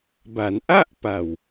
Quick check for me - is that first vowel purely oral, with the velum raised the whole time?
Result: yes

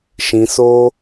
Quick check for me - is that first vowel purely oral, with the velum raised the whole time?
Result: no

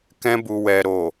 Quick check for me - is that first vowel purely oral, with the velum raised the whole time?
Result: no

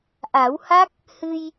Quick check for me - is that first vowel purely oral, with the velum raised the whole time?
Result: yes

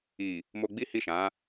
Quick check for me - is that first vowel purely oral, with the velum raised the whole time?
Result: yes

